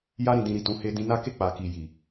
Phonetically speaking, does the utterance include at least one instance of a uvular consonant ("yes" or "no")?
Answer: no